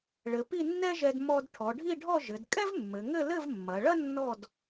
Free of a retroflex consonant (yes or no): no